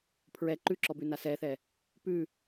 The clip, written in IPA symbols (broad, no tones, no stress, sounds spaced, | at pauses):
pʰ ɹ ɛ ǃ ʉ ǁ ɔ b ʉ n a s ɛ θ ɛ | p ʉ